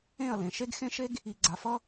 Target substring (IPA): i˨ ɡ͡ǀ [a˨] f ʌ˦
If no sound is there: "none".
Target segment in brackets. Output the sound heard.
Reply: a˨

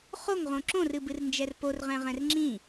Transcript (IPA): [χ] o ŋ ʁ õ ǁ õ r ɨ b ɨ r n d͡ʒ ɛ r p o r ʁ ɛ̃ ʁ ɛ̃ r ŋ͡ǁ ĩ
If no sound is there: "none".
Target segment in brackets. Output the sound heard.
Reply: χ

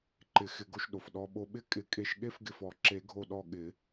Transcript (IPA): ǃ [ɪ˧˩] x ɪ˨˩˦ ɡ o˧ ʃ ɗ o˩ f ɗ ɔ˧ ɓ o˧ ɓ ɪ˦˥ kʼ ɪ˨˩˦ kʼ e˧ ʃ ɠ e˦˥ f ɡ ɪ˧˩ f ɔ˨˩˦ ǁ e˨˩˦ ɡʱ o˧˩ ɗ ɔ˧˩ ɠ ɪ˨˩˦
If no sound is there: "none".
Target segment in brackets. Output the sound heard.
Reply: ɪ˨˩˦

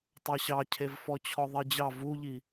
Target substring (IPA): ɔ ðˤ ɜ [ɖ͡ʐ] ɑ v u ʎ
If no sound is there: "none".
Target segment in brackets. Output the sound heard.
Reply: d͡ʑ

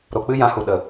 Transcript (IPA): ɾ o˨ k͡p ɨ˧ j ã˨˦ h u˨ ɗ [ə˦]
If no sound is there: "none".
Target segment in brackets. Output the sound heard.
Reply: ə˨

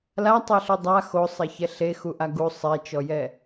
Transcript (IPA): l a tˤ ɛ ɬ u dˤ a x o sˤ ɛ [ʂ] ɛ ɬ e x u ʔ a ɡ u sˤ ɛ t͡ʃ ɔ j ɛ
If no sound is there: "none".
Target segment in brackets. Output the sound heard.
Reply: ç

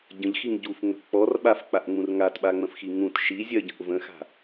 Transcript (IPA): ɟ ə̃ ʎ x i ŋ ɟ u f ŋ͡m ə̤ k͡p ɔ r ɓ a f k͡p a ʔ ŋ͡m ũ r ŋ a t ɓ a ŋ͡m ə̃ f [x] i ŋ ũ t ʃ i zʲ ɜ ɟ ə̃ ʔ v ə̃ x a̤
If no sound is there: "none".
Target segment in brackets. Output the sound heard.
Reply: x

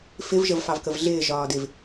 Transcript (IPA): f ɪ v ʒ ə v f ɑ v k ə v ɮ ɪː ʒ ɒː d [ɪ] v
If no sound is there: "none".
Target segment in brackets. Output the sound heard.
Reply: ɪ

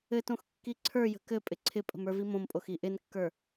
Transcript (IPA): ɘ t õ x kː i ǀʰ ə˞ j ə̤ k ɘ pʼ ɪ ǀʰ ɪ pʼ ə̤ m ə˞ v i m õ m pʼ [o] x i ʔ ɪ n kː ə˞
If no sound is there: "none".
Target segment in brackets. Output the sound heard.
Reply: o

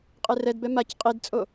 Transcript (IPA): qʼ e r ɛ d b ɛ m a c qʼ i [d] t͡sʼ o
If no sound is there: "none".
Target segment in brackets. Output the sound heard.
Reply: d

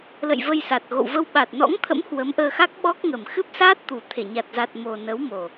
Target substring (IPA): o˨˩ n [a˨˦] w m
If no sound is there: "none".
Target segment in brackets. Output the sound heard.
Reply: ə˨˦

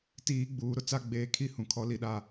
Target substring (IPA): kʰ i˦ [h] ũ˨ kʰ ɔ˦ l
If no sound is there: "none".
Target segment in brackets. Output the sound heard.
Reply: h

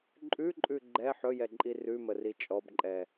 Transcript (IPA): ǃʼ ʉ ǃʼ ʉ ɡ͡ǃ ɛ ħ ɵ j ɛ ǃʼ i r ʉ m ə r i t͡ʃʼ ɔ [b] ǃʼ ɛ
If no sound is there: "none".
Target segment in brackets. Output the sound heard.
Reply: b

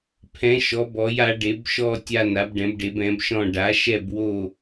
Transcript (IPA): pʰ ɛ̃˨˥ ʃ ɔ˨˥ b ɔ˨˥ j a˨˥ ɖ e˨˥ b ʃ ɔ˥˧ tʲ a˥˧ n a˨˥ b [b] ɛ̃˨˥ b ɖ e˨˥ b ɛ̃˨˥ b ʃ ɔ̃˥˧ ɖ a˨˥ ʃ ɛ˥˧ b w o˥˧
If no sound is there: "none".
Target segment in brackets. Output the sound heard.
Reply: ɖ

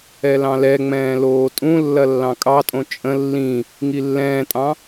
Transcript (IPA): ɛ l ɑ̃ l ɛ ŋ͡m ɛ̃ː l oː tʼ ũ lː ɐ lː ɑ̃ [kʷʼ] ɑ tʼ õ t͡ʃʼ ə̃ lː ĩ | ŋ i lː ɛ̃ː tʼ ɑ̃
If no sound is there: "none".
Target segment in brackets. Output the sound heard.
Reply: kʼ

